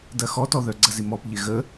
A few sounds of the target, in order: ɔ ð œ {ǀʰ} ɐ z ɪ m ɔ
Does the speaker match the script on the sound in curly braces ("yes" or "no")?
no